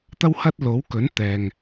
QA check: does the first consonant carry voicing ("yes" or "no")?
no